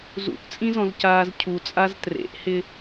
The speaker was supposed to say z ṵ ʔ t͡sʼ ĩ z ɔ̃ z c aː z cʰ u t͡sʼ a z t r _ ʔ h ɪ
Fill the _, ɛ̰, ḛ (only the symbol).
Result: ḛ